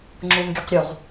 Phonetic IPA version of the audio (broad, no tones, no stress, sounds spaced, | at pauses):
ŋ͡ǁ u n ɡʲ ʌ q ɾʲ u ʁ